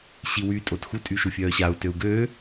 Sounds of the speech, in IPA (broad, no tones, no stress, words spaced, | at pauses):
ɕiwy tʼotxu tʼyʃufʲœːɕau̯ tøu̯ɡøː